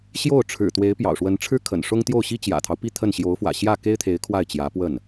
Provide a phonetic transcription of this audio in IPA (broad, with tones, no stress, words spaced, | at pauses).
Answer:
ɕjo˥˩ʊ̯ʈ͡ʂʰɻ̩˨˩t̪we˧˥ɪ̯ pjɑ̰˨˩ʊ̯ʂwə˧˥nʈ͡ʂʰɻ̩˥ kʰə̰˨˩nʂʊ˥ŋ t̪jo˥˩ʊ̯ɕi˥ t͡ɕjä̰˨˩t̪ʰɑ˦ʊ̯ pi˥˧t̪ʰə˥˩n ɕjo˧˥ʊ̯fwä̰˨˩ɕjä˥˩ ke˥ɪ̯t̪ʰe˧˥ɪ̯ kʰwa˥˩ɪ̯t͡ɕjä˧˥pwə˥˩n